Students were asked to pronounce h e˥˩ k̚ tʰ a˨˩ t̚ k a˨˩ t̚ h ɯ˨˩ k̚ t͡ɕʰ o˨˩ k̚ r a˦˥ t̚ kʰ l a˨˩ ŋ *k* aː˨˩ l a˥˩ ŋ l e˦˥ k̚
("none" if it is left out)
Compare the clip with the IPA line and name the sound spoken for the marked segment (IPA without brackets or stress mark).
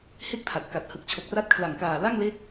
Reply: k